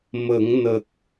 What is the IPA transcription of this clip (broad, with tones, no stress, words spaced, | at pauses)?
mə˨˩˦ŋnə˨˩k̚